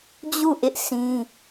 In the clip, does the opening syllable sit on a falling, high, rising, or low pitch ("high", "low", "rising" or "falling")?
falling